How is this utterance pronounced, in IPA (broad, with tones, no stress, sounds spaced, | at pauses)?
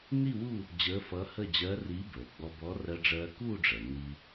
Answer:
n i˥˧ w u˥˧ | d͡ʑ əː˧˥ f ʌ˧˥ h ə˥˧ d͡ʑ ɜː˧˥ r i˧˥ b əː˩ ɡ͡b ɔ˧ b ɔ˧˥ r ɜ˧ ɖ͡ʐ ɜː˧ k uː˥˧ ɖ͡ʐ ɜ˩ n i˧